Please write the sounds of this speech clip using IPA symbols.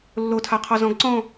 lː o tʰ a qʰ ɔ z ɔ̃ ɡ ǀ ɔ̃

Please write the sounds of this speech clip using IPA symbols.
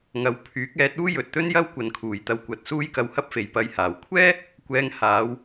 ŋ ɐ˨˧ w pʰ yː˨˥ k̚ ɛː˨˥ t̚ uː˥ j ɵ˨ t̚ t̪ ɵ˥ n j ɐ˥ w kʷ ɐ˨ n kʰ uː˨˩ j t̪ ɐ˧ w kʷ ɐ˨˥ t̚ s uː˥ j k ɐ˧ w h ɐ˥ p̚ f e˨ j p ɐ˧ j h aː˨˩ w kʷʰ ɛː˥ | kʷ ɛː˧ ŋ h aː˨˧ w

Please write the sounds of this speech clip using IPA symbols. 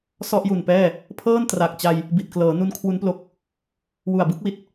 s ɔ˥˩ ʔ j u˨˩ n p ɛː˥˩ | pʰ ɤː˥˩ n t r a˨˩ k̚ t͡ɕ a˧ j | b i˨˩ t̚ k l ɤː˩˦ n u˦˥ n kʰ w u˦˥ n p l o˦˥ k̚ | w u˨˩ a̯ b ɯ˦˥ k̚ w i˨˩ t̚

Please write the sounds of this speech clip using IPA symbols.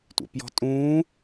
tʷ ḛ p j ɔ̤ tʼ ũː

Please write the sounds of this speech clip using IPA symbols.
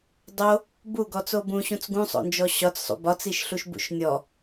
dˤ o | b u ɡ ɔ t͡s o b ũ ɕ ũ t͡s ɡ ũ sˤ o̰ n d͡ʒ ɔ ɕ ɒ t͡s sˤ ṵ b ɒ t͡s i ʃ ɬ u ʃ b ṵ ʃ nʲ ɔ

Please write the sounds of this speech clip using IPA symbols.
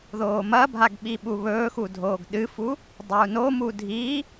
ð oː m ɐ bʱ a ɡ ɓ i ɓ u β ɵː x u dʱ oː ɡ ɗ ɨ f u | dˤ a u̯ n o m u dʱ i

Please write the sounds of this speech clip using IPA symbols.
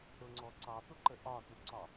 ɾ ʊ ŋ͡ǀ ɔ ǀ ɑ t̪ ʊ ǃ ə ʔ ɒ t u ǀ ɒ

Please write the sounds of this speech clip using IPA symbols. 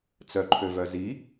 t͡s œ ǃʰ ø v œ z i

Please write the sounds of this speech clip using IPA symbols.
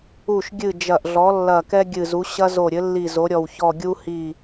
u˧˩ ʃ ɡʲ ɨ˧˩ d͡ʒ ɐ˧˩ ʔ ɮ ɔ˩˥ lː ɐ˧˩ k ɛ˦ ɡʲ ɨ˧˩ z u˩˥ ɕ ɐ˦ z o˧˩ ɾʲ ɘ˩˥ lː i˧˩ z o˩˥ ɾʲ ɔ˧˩ w ç ɔ˧˩ ɡʲ u˦ h i˧˩

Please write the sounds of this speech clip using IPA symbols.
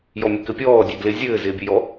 j ɔ mʲ e k ɘ pʲ ɔː dʲ e d l ɪ zʲ ɘː z ɪː bʲ ə j ɔ

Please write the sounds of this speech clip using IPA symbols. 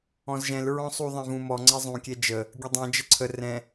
ɔ̃ z ʒ ɛ̃ l ɹ ɔ̃ sˤ u ðˤ ɛ̃ v ũ m ɔ ŋ͡ǀ ɛ zˤ ũ kʲ ɛ d͡ʒ ə | ɡʲ ə dˤ ɛ̃ d͡ʒ ə ǀʰ ə r ɛ̃

